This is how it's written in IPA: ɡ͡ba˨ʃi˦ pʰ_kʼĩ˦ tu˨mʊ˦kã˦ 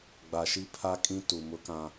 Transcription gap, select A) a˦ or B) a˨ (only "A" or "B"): A